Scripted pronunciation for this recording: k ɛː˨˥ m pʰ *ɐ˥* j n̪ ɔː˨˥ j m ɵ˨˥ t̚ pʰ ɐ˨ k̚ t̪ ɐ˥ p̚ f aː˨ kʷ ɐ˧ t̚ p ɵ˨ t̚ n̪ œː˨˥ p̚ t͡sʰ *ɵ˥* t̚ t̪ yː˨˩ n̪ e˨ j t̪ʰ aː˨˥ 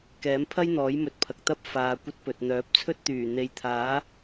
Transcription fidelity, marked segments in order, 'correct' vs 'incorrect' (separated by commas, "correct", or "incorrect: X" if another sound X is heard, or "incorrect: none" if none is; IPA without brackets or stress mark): correct, correct